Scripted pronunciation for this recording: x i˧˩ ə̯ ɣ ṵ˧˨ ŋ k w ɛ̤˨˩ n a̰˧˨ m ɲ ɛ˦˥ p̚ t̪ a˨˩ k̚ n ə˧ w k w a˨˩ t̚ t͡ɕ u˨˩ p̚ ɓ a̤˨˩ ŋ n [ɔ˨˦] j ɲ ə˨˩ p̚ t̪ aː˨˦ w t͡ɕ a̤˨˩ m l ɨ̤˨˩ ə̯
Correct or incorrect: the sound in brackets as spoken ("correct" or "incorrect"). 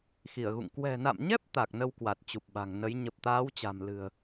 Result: incorrect